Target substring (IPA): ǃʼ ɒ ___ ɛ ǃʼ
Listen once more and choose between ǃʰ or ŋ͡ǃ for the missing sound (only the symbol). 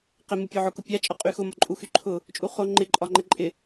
ŋ͡ǃ